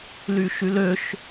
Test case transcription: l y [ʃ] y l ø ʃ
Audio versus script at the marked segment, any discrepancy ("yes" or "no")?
no